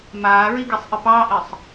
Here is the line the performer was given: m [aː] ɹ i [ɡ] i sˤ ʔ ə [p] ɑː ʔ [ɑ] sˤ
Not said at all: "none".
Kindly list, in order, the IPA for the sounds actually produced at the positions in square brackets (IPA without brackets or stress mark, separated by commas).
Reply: aː, ɡ, p, ə